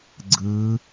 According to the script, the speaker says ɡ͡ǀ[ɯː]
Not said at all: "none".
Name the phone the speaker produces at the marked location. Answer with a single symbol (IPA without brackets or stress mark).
ɯː